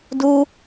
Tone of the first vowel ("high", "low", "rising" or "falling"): high